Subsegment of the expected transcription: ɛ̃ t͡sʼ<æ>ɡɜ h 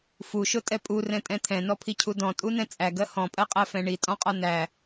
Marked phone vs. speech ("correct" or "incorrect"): correct